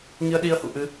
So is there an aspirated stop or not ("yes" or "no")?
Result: no